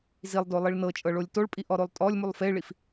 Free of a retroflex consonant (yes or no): no